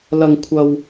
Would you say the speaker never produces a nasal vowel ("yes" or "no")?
yes